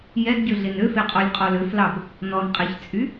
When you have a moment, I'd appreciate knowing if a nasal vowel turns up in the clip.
no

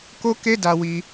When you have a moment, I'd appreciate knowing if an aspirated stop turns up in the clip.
no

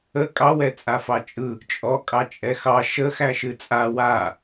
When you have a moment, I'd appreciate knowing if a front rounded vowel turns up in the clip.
no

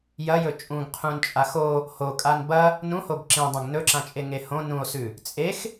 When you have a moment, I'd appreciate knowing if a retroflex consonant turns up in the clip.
no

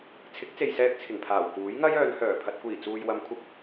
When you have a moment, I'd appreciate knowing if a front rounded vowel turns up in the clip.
yes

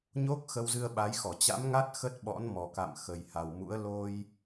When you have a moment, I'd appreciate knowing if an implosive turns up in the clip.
yes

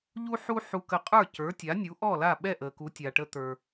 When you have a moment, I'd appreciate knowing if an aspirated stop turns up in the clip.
no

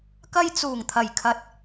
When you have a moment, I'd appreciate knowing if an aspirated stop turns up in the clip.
yes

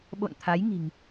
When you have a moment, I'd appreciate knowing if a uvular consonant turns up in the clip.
no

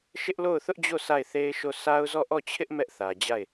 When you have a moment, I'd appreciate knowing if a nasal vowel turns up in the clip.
no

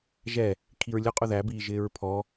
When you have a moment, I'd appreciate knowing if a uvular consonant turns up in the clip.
yes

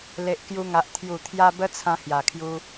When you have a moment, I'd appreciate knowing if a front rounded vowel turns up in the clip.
no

